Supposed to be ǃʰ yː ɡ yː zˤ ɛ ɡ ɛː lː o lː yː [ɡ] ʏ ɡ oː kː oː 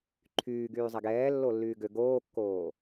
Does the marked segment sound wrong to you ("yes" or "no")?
no